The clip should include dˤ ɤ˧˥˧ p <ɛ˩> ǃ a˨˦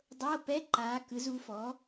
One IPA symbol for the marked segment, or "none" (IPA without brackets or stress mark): ɛ˧˥˧